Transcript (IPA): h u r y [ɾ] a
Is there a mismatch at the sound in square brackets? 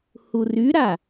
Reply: no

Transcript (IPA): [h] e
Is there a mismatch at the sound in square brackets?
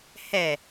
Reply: no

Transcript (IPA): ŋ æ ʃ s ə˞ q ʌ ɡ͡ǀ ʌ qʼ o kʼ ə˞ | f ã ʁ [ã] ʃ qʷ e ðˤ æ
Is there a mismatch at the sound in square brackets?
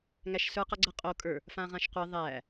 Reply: no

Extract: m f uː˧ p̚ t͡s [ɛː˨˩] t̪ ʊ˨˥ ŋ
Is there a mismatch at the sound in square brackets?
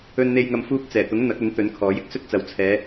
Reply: no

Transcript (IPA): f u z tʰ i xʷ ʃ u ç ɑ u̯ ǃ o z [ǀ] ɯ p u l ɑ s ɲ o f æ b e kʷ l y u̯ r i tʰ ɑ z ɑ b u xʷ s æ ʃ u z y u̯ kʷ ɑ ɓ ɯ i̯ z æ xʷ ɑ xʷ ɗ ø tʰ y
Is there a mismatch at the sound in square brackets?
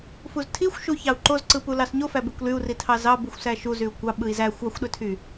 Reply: no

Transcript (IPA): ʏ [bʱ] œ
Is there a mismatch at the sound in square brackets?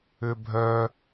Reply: no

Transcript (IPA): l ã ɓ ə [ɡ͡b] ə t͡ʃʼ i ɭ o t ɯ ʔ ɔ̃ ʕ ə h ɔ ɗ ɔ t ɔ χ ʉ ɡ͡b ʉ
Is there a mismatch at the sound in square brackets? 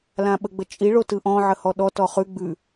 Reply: no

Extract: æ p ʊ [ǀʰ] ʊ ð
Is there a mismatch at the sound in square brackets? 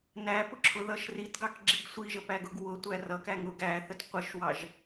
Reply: yes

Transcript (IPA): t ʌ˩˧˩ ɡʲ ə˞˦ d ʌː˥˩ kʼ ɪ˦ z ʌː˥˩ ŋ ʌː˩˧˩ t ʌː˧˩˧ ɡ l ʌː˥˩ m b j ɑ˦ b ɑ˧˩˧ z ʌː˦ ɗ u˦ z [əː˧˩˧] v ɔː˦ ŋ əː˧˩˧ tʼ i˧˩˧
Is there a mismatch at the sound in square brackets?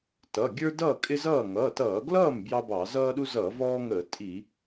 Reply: yes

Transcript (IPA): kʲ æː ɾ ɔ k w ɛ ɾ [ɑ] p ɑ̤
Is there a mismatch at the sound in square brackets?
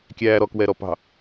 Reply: yes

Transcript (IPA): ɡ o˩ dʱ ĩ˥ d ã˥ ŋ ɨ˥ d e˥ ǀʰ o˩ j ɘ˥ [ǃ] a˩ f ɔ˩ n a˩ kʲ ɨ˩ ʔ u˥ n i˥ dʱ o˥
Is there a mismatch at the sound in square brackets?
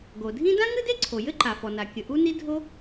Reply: no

